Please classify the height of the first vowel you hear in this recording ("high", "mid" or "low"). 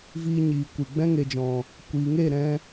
high